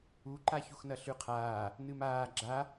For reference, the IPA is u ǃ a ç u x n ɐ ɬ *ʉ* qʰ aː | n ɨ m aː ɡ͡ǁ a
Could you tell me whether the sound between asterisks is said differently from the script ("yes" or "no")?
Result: no